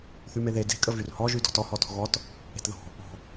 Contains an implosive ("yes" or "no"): no